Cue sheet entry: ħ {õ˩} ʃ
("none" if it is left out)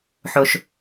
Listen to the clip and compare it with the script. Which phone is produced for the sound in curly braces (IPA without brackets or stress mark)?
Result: o˩